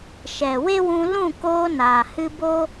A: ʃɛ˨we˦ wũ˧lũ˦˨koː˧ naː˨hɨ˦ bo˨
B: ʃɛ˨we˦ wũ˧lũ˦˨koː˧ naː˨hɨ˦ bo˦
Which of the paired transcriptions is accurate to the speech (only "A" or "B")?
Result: B